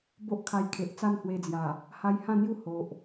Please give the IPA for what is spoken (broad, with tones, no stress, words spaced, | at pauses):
bo˦ʔkʰa˧jkʰe˨ʔ t͡sa˥˧nhwe˧d͡zja˨˩ | ha˧jhã˥˧n̪ju˥˧ ho˨ʔ